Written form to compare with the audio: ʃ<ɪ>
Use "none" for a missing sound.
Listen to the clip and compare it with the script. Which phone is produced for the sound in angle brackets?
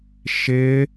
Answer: ɪ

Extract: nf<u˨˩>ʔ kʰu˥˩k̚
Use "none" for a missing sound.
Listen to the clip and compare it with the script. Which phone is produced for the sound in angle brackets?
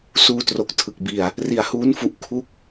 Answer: u˨˩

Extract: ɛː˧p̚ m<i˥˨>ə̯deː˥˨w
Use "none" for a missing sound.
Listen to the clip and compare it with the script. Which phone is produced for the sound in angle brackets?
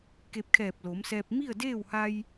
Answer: i˥˨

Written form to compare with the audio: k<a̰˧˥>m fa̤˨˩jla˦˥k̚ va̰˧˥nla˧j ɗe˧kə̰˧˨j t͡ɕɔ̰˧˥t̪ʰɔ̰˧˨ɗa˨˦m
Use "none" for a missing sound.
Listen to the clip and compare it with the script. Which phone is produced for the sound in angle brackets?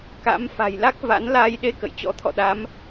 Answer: a̰˧˥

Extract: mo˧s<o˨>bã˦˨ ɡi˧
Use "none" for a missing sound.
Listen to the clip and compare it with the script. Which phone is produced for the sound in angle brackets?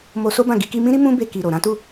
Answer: o˦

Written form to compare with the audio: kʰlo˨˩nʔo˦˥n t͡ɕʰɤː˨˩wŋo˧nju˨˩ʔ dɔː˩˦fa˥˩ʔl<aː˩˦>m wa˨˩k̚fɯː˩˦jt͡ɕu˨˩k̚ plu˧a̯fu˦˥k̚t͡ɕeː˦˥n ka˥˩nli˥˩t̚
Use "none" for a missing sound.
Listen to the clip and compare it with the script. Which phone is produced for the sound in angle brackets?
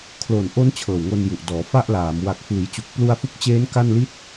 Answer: aː˩˦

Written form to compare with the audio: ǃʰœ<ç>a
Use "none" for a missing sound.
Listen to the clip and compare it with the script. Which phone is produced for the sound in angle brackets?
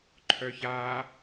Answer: ç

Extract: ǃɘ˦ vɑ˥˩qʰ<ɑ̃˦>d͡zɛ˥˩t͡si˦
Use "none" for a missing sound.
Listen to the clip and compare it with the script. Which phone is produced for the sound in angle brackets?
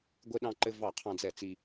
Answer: ɑ̃˦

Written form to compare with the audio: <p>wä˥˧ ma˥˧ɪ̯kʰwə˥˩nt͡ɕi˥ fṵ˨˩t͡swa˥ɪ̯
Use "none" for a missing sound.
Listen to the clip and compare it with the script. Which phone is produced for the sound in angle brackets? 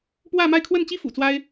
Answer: p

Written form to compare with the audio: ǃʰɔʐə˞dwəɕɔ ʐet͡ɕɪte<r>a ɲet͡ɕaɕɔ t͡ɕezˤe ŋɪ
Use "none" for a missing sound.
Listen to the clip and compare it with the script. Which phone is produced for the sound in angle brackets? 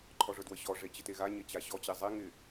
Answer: ɣ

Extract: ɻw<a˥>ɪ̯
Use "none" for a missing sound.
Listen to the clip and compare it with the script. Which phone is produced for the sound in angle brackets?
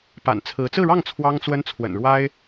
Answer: a˥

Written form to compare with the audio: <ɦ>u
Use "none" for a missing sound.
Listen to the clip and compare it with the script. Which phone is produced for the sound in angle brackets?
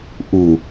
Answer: ʔ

